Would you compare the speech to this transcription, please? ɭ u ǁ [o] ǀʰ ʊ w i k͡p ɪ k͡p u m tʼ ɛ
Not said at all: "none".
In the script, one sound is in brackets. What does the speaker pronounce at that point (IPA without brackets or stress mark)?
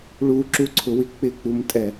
u